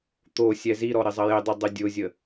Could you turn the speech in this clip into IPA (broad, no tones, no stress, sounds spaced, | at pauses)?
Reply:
t̪ o sʲ ɛ z i ɾ ɔ ɾ ɪ zˤ ɐ j ɪ dˤ i dˤ ɪ dʲ ʊ zʲ ə